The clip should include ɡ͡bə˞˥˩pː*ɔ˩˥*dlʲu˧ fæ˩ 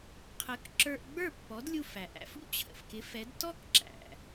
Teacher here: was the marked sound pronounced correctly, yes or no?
yes